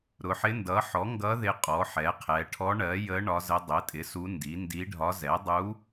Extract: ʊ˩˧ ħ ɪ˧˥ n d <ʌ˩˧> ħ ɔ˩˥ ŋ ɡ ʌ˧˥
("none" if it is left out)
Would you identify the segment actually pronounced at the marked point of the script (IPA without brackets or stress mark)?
ʌ˩˥